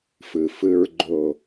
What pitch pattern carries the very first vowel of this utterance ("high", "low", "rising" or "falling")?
low